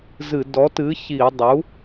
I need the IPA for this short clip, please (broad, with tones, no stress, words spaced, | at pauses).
zɨ˧˩˧ dɔ˩˥tɨ˩˥ çi˧˩˧ dˤu˩˥